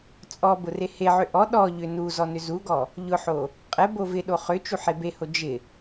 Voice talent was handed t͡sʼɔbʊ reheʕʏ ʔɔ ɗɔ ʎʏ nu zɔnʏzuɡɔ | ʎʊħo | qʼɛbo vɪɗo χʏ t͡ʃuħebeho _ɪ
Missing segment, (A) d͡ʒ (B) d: A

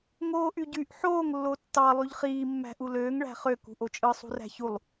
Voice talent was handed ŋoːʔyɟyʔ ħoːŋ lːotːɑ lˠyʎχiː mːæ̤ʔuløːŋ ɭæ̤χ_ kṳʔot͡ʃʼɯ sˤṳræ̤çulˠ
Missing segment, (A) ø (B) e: A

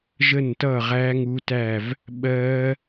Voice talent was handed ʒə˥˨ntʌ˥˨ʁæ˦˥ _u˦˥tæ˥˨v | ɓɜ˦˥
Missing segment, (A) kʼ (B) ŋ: B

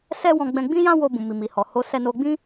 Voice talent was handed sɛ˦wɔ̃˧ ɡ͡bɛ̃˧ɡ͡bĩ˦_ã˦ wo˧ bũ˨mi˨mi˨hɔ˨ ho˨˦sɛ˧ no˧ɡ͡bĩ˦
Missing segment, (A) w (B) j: B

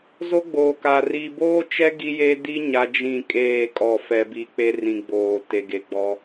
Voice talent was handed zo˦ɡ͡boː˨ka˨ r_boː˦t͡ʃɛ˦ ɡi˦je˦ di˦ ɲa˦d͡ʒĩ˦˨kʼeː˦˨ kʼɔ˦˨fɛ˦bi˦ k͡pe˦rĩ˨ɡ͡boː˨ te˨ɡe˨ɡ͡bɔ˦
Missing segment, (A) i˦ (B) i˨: B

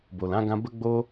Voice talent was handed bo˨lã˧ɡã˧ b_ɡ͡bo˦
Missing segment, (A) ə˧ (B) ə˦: B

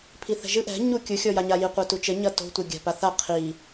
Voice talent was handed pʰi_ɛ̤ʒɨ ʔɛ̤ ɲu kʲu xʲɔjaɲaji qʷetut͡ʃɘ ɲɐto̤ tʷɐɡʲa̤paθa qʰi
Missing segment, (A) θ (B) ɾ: A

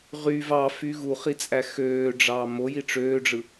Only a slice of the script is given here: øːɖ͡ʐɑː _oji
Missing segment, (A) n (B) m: B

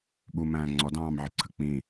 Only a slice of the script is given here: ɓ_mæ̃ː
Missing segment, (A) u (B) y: A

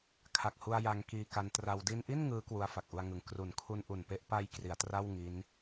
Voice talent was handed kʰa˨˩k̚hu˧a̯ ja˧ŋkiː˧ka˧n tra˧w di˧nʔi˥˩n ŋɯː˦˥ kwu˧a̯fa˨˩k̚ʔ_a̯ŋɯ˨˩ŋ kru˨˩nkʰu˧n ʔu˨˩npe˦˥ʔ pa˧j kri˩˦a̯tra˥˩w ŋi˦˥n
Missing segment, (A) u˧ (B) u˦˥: A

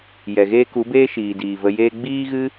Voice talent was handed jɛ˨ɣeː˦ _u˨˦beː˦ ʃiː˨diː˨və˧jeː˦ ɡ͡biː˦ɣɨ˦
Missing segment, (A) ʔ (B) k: B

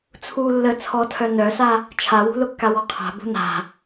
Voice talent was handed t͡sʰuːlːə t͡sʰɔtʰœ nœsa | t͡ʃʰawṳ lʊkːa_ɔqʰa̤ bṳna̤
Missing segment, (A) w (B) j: A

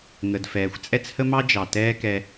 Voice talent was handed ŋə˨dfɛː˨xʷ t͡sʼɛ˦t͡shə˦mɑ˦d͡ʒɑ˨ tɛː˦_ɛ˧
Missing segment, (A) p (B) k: B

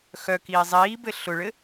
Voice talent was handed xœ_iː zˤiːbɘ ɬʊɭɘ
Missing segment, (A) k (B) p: A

